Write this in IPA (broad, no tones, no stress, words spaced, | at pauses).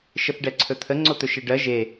ʃəθɖɛǀʰɵt̪ʰə ŋ͡ǀot̪ɵʃeɖɜ ʒe